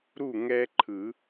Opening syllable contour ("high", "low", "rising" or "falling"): falling